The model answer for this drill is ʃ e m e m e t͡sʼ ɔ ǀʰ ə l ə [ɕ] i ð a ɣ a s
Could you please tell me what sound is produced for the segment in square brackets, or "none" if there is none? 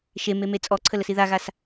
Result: s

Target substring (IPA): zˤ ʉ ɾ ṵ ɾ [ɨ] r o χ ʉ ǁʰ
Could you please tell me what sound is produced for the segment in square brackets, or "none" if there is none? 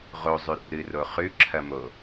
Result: ɨ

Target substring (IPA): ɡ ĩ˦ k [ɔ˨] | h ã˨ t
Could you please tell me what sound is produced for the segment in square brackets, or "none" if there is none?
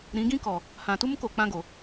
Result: ɔ˨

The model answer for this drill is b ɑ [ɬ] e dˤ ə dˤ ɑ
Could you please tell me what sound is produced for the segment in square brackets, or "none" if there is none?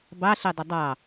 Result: ɬ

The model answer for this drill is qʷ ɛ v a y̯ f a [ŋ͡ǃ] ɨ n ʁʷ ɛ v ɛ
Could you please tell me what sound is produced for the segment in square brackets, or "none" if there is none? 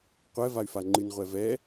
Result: ŋ͡ǃ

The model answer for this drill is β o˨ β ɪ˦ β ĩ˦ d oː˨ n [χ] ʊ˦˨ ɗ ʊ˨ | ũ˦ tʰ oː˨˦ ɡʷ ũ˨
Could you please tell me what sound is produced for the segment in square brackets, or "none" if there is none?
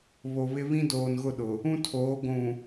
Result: ɣ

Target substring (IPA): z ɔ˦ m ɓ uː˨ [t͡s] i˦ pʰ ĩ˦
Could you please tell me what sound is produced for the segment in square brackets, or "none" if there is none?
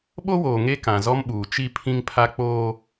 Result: t͡ʃ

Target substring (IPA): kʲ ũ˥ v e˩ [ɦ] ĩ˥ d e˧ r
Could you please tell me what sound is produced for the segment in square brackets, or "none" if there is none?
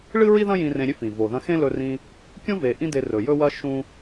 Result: ʔ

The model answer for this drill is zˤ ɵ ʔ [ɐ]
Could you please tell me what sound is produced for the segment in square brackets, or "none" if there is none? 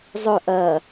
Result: ɐ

